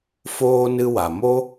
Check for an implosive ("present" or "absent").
absent